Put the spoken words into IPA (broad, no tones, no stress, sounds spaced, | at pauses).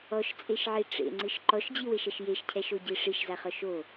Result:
ɔ ʃ t͡sʼ e ʃ ʕ i ʈ͡ʂ ḛ ŋ͡ǀ ɨ ʃ ǃ ɔ ʃ d͡ʑ i w e ʃ ɐ ʃ j e ʃ cʰ ɛ ʃ o ɟ i ʂ i ʃ z a χ ɔ ʃ o